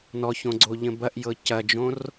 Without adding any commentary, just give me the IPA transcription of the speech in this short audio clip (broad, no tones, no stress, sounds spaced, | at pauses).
n ɔ ç õ ɡ͡ǀ o ʎ ə̃ b ɐ ʔ j ɤ c ɐ d͡ʒ õ r